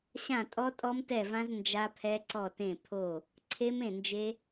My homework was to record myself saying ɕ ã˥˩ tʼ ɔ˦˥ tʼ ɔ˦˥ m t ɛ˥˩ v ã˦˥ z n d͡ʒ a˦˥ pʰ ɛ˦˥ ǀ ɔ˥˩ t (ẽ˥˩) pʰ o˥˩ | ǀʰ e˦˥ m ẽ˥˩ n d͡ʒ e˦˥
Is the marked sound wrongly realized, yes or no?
no